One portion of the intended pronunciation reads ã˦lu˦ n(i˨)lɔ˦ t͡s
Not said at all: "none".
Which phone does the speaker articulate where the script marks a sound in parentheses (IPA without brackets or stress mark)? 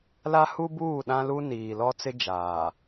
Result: iː˨